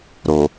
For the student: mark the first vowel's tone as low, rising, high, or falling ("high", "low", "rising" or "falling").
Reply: low